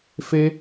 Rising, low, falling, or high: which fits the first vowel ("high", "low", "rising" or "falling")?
high